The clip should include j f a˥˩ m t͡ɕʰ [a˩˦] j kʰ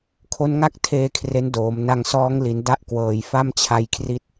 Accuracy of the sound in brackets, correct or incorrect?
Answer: incorrect